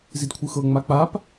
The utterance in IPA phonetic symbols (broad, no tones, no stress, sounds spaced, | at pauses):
z i d kʷʰ ɯ x ɤ ŋ͡m a k͡p a p